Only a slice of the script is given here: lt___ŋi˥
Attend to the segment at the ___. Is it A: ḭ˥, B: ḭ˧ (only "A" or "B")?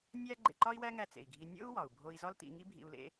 B